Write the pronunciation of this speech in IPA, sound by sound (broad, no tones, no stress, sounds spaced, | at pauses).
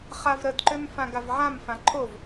χ a v ɾ ə d ǃ ø m f ã ɡ a v ʕ ã m f ã ǃʰ o v